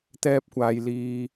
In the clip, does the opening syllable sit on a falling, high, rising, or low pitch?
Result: high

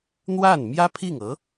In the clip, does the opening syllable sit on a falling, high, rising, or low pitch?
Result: falling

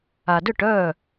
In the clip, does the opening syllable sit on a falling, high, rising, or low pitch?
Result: low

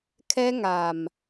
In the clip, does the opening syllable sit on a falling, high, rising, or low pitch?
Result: high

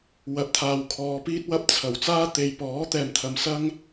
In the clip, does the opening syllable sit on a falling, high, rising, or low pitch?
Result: rising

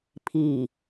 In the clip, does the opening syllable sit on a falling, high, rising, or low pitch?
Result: low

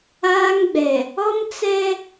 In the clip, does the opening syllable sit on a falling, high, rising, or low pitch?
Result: high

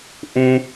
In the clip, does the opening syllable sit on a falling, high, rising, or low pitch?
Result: high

